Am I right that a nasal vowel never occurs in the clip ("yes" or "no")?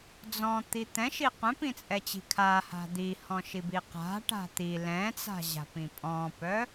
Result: no